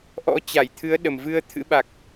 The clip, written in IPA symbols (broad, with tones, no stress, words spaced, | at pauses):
ʔɔ̰˧˥t͡ɕa˧˩jt̪ʰɨ˨˦ə̯ ɗə˨˩mvɨ˧ə̯ t̪ʰɨ̰˧˥ɓa˨˩k̚